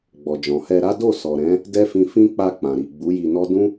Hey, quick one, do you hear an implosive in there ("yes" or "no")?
no